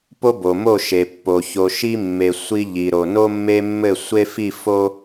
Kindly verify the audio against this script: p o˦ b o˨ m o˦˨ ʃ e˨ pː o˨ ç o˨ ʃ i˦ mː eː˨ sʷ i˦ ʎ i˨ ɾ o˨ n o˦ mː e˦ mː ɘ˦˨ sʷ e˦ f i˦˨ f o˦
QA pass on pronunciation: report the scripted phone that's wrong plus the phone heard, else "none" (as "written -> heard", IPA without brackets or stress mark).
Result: eː˨ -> e˨